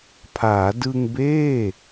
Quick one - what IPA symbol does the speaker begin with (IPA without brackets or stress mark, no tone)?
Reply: pʰ